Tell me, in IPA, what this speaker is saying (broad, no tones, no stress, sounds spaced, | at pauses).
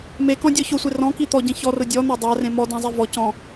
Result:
m e k ɔ̃ dʲ ɔ ç ʊ sʷ e r ɔ̃ k i t̪ ɔ ɟ ẽ ç ɔ r ʊ dʲ ɔ n̪ a dˤ a r ẽ m ɔ d ã zˤ e v ɔ c ɔ̃